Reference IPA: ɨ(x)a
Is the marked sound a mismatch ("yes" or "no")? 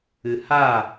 yes